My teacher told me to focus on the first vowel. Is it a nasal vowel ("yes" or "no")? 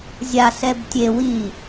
no